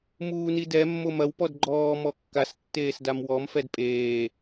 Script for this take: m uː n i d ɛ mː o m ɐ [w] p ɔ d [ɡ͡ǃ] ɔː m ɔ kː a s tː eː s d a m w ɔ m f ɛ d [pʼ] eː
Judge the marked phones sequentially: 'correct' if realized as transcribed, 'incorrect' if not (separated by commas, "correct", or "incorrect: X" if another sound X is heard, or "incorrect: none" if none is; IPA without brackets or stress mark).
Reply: correct, correct, correct